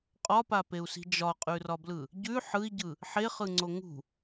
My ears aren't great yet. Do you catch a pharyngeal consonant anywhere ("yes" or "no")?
yes